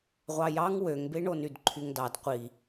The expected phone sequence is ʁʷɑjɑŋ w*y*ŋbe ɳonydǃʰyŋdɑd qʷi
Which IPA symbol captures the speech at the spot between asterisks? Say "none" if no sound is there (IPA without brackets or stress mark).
ø